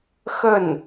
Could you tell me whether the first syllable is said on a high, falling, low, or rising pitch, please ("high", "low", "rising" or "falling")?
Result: falling